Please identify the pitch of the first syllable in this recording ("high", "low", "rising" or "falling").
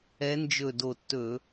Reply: rising